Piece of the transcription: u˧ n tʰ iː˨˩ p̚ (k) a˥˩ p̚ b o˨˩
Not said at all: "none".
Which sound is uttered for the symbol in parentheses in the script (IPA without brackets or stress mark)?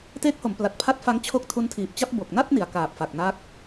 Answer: t͡ɕ